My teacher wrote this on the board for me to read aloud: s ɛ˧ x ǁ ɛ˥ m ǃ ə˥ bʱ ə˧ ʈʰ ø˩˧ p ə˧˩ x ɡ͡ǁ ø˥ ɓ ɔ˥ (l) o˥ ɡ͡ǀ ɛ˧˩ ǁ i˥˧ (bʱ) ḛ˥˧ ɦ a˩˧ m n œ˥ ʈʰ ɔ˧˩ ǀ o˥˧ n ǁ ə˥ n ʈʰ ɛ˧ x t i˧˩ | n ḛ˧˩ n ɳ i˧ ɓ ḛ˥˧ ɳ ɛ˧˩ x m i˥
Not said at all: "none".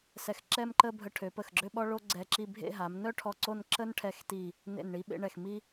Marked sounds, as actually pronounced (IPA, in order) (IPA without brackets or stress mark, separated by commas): ɭ, bʱ